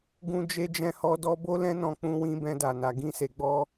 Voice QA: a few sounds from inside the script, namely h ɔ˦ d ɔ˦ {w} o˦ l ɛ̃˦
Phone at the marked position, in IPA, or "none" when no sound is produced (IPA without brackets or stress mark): b